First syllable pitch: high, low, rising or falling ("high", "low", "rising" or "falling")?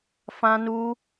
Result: high